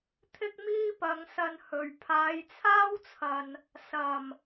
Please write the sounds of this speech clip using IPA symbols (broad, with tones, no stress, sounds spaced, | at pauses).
t̪ʰ ɪ˥ k̚ m iː˥ p ɐ˨˧ ŋ s ɐ˧ n h ɵ˨ ɥ pʰ aː˨˧ j t͡sʰ aː˥ w t͡sʰ ɐ˨ n | s ɐ˨˩ m